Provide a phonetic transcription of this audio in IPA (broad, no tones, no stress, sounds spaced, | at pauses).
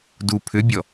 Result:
d u pʰ ʏ bʲ ɔ